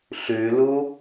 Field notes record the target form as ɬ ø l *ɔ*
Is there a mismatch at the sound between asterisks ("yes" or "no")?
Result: yes